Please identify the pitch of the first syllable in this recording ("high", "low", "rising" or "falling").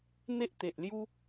high